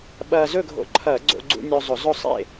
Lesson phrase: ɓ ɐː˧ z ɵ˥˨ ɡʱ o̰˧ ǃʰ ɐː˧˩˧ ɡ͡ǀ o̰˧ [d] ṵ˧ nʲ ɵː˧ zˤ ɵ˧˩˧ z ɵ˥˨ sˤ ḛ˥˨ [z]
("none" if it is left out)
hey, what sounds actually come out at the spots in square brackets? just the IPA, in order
ɡ͡ǀ, none

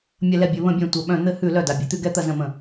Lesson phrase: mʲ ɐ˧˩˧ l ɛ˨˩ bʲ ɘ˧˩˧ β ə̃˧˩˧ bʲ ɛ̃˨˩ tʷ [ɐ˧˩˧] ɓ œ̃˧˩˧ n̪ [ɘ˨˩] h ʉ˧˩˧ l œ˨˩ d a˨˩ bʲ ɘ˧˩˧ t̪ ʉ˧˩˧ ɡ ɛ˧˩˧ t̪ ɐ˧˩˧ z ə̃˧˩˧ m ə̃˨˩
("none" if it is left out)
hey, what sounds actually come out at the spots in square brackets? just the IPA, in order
ɐ˧˩˧, ɘ˧˩˧

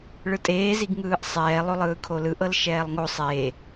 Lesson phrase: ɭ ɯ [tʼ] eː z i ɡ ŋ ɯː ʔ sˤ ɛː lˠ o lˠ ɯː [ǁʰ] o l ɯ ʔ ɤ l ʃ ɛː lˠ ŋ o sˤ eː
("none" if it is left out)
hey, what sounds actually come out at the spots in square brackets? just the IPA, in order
tʼ, kʰ

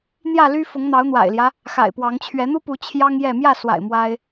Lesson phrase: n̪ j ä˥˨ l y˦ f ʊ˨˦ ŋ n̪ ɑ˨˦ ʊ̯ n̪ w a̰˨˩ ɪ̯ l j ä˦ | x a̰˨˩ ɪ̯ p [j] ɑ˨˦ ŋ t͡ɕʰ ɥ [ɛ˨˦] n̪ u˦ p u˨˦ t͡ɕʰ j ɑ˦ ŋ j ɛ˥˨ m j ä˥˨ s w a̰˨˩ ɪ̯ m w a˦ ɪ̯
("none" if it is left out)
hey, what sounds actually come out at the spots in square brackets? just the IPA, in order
w, ɛ˨˦

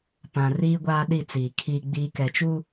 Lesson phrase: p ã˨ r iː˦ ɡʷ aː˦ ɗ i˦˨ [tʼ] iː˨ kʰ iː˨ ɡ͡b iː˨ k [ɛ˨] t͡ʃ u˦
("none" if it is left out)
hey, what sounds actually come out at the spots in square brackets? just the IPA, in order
t͡s, ɛ˨

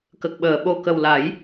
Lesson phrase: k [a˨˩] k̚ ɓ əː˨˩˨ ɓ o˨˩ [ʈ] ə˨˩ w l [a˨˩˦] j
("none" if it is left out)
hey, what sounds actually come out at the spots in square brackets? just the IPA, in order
ə˨˩, k, a˨˩˦

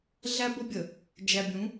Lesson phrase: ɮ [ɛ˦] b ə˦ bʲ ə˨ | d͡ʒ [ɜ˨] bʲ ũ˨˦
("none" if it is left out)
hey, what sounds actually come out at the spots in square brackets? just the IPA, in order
æ˦, æ˨

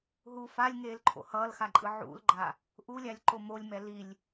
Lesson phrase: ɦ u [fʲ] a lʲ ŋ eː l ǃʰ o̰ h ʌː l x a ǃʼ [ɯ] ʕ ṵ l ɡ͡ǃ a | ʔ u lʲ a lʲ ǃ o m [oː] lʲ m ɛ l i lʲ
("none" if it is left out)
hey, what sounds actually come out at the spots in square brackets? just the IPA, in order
f, ɯ, o

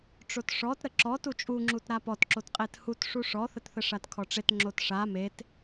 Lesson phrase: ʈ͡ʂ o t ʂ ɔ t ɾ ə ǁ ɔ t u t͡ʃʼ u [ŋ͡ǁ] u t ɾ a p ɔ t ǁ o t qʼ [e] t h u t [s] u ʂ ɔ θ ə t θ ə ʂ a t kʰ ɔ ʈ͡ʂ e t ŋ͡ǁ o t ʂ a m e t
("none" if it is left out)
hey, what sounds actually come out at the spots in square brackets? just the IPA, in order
ŋ͡ǁ, e, ʂ

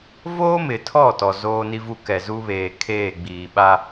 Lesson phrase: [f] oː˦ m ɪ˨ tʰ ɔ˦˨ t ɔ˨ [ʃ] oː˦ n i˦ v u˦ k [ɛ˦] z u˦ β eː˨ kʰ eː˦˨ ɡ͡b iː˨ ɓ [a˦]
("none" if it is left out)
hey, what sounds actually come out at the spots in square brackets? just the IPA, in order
v, z, ɛ˨, a˦

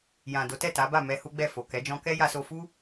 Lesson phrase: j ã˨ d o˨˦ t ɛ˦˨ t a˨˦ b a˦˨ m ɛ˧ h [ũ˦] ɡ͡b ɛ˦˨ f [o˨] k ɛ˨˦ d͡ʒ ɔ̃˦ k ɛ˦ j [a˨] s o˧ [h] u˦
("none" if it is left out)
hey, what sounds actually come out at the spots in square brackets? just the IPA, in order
u˦, o˨, a˧, f

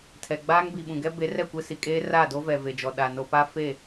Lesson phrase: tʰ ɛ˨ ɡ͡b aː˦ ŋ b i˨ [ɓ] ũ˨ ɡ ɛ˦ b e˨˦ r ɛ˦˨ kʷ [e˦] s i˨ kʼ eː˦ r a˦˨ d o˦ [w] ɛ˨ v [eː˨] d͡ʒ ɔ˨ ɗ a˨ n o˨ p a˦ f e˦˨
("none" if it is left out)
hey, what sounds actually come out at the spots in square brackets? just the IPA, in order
ɓ, e˦, v, e˨

